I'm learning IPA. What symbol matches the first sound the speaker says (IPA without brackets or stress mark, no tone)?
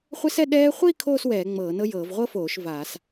χʷ